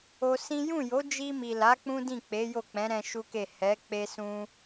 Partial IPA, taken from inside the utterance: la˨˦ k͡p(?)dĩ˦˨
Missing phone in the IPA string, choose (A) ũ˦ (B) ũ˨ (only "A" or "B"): A